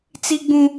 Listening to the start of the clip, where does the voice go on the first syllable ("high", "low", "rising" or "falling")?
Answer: high